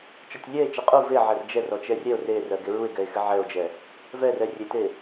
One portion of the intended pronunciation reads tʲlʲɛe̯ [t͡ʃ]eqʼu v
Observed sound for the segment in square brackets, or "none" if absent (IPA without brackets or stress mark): t͡ʃ